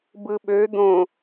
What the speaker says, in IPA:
b ɯ ɓ ø d̪ õ

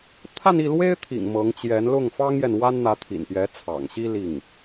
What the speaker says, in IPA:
t̪ʰ a˥˧ n i˥˩ l w e˥ ɪ̯ t̪ʰ ḭ˨˩ ŋ m ɤ˧˥ ŋ t͡ɕ j ɛ˧˥ n l ʊ˥˩ ŋ f ɑ˥ ŋ j ɛ˨ n w a˥ n n̪ ä˧˥ t̪ʰ ḭ˨˩ n p j ɛ˧˥ t͡sʰ ɑ̰˨˩ ŋ ɕ i˥ l i˥˩ ŋ

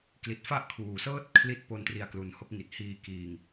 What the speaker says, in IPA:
k l i˨˩ t̚ f a˥˩ ʔ kʰ uː˨˩ s ɤː˥˩ t̚ kʰ l i˦˥ t̚ p o˧ n t r i˧ a̯ k l u˨˩ n h o˦˥ k̚ ŋ i˨˩ t̚ h iː˧ k iː˧ ŋ

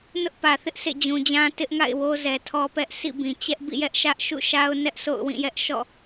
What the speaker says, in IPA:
n ʊ˦ ʔ p ä˨ θ ɪ˦ ʔ sʰ ḛ˦˨ d͡ʑ ũ˨ d͡ʑ ã˦ t ɪ˦ ʔ ŋ a̰˦˨ ɪ̯ w o˦ z ɛ˨ tʰ ɔ˦ p ɛ˦ ʔ s ḭ˦˨ b ĩ˨ t͡ɕ ɛ˦ ʔ b ḭ˦˨ j ɛ˦ ʔ ʃ ä˦ ʔ ʃ ṵ˦˨ ʃ a˦ ʊ̯ n ɛ˦ ʔ sʰ o̰˦˨ ʊ̯ w ĩ˦˨ j ɛ˦ ʔ ʃ ɔ̰˦˨

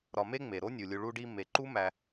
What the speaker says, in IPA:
ɾ ɒ˨ m e˦ ŋ͡m e˩ ɾ o˥ nʲ u˩ lʲ u˨ ɭ u˦ ɖ i˦ m e˩ ǃ u˥ m æ˨

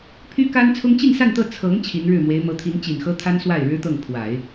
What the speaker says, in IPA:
pʰ y˥ k a˥ n t͡sʰ ʊ˥ ŋ t͡ɕ i˥˧ n s a˥˧ n t̪ ɤ˥˩ t͡sʰ ɤ˧˥ ŋ t͡ɕʰ i˧˥ n ɻ ɻ̩˥˩ m w e˧˥ ɪ̯ m ɤ˧˥ t̪ʰ i˧˥ n t͡ɕ i˨˩ n x ɤ˥ t̪ʰ a˥ n s w a˥˩ ɪ̯ ɻ ɻ̩˥ t̪ ɤ˥˩ ŋ pʰ w a˨˩˦ ɪ̯

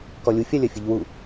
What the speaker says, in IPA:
k ɔ lʲ u fʲ a lʲ ɐ fʲ ɨ ʎ w u

